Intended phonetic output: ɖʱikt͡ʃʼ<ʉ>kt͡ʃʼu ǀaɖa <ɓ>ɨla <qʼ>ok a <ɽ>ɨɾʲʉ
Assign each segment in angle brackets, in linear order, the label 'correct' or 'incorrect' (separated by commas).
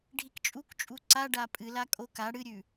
incorrect, incorrect, incorrect, correct